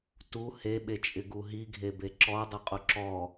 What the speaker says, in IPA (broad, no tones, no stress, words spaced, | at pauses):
tu heɓet͡ʃʼɪ ɡuɦiɡʱebe ǁɔdˤɪ qʼuǁɔ